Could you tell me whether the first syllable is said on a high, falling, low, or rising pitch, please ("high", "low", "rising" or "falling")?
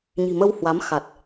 low